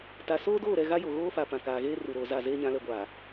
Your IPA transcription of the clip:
t a˨ s oː˦ d oː˦˨ ɾ ɛ˦˨ ɣ a˦ j o˨ ɣ oː˦ f a˨ p ã˨ k aː˨ ɣ eː˦ r u˨ ɾ oː˨ z a˦˨ z eː˦ ɲ ã˨˦ l ɛ˨ ɡʷ aː˨

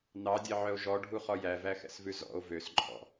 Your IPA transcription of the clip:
n ɑ dʲ ɛ ʕ œ o̯ ʒ ɔ ɖʱ u χ ɔ j æ v æ x ɛ̰ s v ʉ z ɔ̰ o̯ v ø s ǃʼ ɔ̰

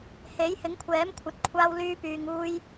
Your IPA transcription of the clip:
h e˨˥ j h ɪ˨˥ ŋ kʷʰ ɛː˨˥ m kʷʰ ɐ˨˥ t̚ kʷʰ aː˥ w l yː˥ p yː˧ ŋ uː˥ j

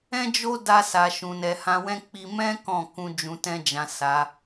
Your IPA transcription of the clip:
ɛ̃˦ d͡ʒ o˦ d a˧ s a˨ ʃ ũ˨ n ɛ˨ h ã˧ w ɛ̃˦ k͡p i˧ m ɛ̃˦ k ɔ̃˦˨ k ũ˧ d͡ʒ ũ˨ t ɛ̃˧ d͡ʒ ã˨ s a˨˦

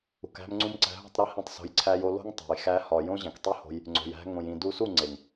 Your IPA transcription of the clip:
ṳ˨ k æ̤˧ m ŋ͡ǀ ũ˧ m ǀ æ̤˧ ɦ ṳ˦˨ tˤ ɾ æ˦ h ĩ˧ tˤ s o̤˨˦ j ǀʰ æ˧ j o˧ l o̤˦ ŋ tˤ æ̤˨ j x æ˧ h ɒ˨ j õ˦ ʑ æ̃˨ k tˤ u˦ h o̤˧ j | ŋ͡ǀ o̤˨ j æ̤˧ ŋ õ˨ j ĩ˨ d u˧ s u˦˨ ŋ͡ǀ e˨ ŋ

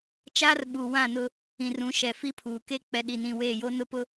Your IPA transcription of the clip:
t͡ʃ aː˦ r ɓ u˨ w ã˦˨ n ʊ˦ | ĩ˨ r ũ˨˦ ʃ ɛ˨ f i˦ pʰ uː˨ k e˦ k͡p ɛ˨ ɗ i˨ n ĩ˨ w eː˦˨ j o˦ n ʊ˦ p ʊ˦

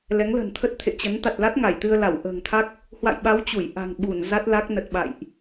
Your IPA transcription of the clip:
l ɛ˨˦ ŋ l ə̤˨˩ n t̪ʰ ə˦˥ t̚ t̪ʰ ḛ˧˨ t͡ɕ ə˨˦ n t̪ a˨˩ t̚ l a˦˥ t̚ ŋ a˧˩ j t̪ ɨ˧ ə̯ l a˧˩ w ʔ ə̤ː˨˩ ŋ t̪ʰ a˦˥ k̚ | h w a̰˧˨ j ɓ a˨˦ w t͡ɕ u˧˩ j ʔ a̤˨˩ ŋ ɓ u˧˩ n z a˦˥ t̚ l a˦˥ k̚ n ə˨˩ t̚ ɓ a̰˧˨ j ʔ

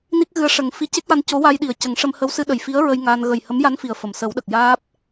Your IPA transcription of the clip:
n i˦˥ k̚ ɣ ɨ˧ ə̯ ʂ ə˨˩ ŋ f i˧˥ c e˦˥ k̚ w a˧˥ n c o˧˥ w a˧ j ɗ i˨˩ ə̯ c ə˨˩˦ ŋ ʂ ə˧ m h ə˧˥ w s ɨ˧ ɗ ə˨˩ j f i˧˥ ə̯ ɹ ə˧ j ŋ aː˧ n ɣ ə˨˩ j h ə˧˥ m j a˧˥ n f i˨˩ ə̯ f ə˨˩˨ m s ə˨˩˦ w ɗ ə˨˩ k̚ j aː˦˥ p̚

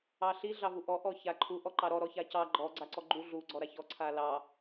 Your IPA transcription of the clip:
ɑ ɬ i ɮ ɑ v u ʔ ɔ ʔ ɔ ç a ǃʰ u ʔ ɔ ǃ ɑ ɾ ɔ ɾ ɔ ç a c ɑ ɡ͡ǃ ɔ ɡ͡ǀ a ǀ ɔ ɡ͡ǃ u ɮ u ɡ͡ǀ ɔ ɾ a ç ɔ ǀʰ a l ɑ

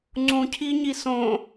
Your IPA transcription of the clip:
ŋ͡ǀ ũ cʰ i ɲ i s õ

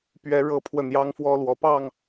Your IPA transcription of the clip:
p ɥ ɛ˨˦ ɻ ɤ˨˦ pʰ w ə˨˩ n j ɑ˦ ŋ f w ɔ˦ l w ɔ˨˦ p ɑ˥˨ ŋ

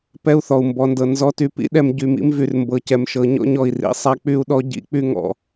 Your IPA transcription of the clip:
p ɛ˦ u̯ θ ɔ˨ u̯ m b ɔ˨˦ n d ɤ˨ n z ɔ˦ t y˦ p ḭ˦ ɗ ɛ˨ m ɟ y˨ m ḭ˦ m v y˨ r m b ɤ˨ c ɛ˨ m ʃ ɤ˨˦ ɲ ɔ̰˦ ɲ ɔ˨ i̯ r ḭ˨ sˤ a˦ k͡p y˦ u̯ ɗ ɔ˦ ɟ ḭ˦ k͡p y˦ ŋ ɔ̰˨

